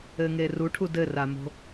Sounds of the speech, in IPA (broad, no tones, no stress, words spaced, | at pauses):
ɘŋeruʈʰu dɘramo̤